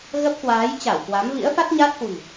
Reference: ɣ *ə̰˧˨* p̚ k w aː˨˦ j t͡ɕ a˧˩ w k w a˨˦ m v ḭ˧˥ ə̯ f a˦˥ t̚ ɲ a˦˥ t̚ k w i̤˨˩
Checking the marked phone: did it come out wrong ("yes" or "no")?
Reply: yes